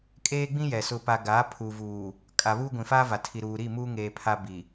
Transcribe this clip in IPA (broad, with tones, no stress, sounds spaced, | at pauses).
kʼ eː˦ ɡ͡b ĩ˦ j ɛ˨ s ʊ˨ p a˨ ɡ aː˨˦ pʰ u˨ v uː˨ | kʼ a˨ β uː˦ ɡʷ ĩ˨ f aː˦ v a˨ tʰ i˨ ɾ uː˨ ɾ i˦˨ m uː˦ ŋ eː˨ pʰ a˦ b i˨